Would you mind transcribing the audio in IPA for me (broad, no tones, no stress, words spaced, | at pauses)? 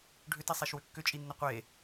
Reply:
ɖʱʏtisˤeʃwʏ kːʏt͡ʃʼinːə qʷe